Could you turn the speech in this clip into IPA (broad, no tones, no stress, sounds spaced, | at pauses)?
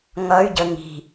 ŋ ʌ y̯ ɟ ə ŋ i̤